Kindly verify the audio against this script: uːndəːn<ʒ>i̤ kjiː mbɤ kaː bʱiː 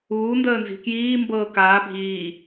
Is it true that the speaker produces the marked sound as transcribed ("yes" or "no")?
no